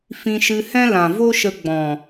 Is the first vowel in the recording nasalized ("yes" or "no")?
yes